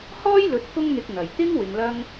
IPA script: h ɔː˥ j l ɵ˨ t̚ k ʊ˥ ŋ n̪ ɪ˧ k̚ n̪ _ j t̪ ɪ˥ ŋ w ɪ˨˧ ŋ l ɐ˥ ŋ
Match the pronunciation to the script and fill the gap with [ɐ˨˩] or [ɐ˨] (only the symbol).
ɐ˨˩